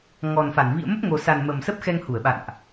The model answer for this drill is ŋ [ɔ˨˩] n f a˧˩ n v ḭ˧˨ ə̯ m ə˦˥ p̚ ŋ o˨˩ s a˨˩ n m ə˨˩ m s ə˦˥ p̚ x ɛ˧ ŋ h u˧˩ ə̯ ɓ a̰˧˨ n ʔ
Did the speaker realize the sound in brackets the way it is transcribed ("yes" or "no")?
yes